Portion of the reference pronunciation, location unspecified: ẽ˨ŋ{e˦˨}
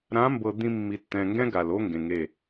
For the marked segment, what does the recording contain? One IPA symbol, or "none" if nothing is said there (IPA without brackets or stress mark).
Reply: e˦˨